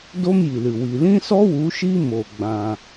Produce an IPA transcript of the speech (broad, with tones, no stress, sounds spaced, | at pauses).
d o˦ m j i˨ l ɨ˨ w i˨ l ĩ˦ s ɔ˦ w u˨˦ ʃ i˦ m o˨ ɡ͡b ã˧